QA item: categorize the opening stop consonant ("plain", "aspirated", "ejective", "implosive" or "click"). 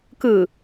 plain